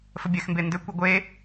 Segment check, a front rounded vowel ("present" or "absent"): present